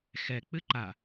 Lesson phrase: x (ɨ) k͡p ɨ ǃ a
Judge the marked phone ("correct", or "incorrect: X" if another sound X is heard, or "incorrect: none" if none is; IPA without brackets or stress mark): incorrect: ɛ